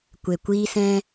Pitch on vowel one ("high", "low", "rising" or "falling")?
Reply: low